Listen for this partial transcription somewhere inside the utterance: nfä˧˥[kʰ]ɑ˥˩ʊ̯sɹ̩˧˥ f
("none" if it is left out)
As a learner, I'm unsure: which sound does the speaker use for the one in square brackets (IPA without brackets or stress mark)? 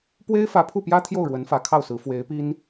kʰ